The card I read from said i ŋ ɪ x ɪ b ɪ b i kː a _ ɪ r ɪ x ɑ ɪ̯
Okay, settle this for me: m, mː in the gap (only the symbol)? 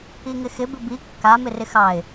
m